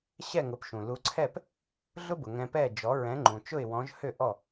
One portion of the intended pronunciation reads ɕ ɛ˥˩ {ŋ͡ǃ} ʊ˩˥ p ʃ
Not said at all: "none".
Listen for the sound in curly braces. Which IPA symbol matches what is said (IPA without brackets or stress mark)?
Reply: ŋ